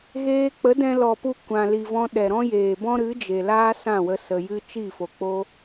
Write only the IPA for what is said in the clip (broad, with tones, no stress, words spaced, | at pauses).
ɣeː˧ k͡pə˨˦dɛ̃˧ lɔ˨pu˧ kʷã˨li˨vɔ̃˧ ɗɛ˨ɾɔ̃˦jeː˨ bɔ̃˦ɾɨ˨˦d͡ʒe˨laː˦ sã˦˨wə˧ sə˨jɨ˧ t͡ʃi˦˨fo˨ k͡po˦